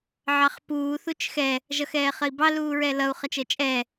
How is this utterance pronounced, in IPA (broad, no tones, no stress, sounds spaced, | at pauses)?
ʕ ɑ χ p uː θ u t͡ʃ x ɛ | ʒ ʌ x ɛː χ ə i̯ b ɑ l uː ɹ ɛ l ʌ u̯ χ ʌ t͡ʃ əː t͡ʃʼ ɛ